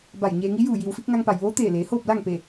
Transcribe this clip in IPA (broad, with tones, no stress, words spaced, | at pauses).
ba˧˩jɲeː˧ŋi˧˥ juː˧˩ji˩wfi˧k̚ ŋa˧ŋpa˩jʋoː˧˥ t̪eː˧˩ leː˩˧hoː˥˨p̚ la˥˨ŋ pe˧˩